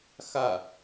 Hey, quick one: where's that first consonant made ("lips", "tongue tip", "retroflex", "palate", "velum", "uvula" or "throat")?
velum